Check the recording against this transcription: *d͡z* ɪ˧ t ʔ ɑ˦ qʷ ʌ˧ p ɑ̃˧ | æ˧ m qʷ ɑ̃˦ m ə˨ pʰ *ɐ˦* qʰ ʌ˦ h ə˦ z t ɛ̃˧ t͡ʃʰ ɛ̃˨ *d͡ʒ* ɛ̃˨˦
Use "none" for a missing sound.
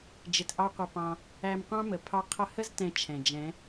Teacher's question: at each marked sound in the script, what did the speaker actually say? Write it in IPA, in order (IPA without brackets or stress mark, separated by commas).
d͡ʒ, ɑ˦, d͡ʒ